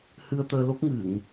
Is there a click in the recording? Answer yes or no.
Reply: no